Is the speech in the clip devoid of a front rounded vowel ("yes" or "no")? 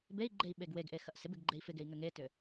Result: no